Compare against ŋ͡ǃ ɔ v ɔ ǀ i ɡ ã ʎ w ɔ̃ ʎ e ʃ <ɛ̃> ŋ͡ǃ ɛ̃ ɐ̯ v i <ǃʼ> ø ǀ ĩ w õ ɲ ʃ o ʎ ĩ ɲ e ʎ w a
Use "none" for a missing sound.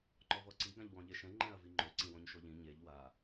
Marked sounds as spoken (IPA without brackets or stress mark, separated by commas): ɛ̃, ŋ͡ǃ